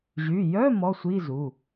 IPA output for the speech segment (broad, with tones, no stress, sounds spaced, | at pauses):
ʑ y˩˧˩ j œ˧˥˧ m ɔ˧˥˧ sʷ i˧˥˧ z u˩˧˩